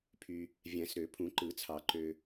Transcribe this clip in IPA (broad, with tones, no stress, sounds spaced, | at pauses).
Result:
pʰ y˨ | vʲ æ̃˨˩˦ s ɾ ø˨˩˦ pʰ ũ˨˩˦ ǃ ɯ˨˩˦ t͡sʰ ɑ˨˩˦ ǃ ø˨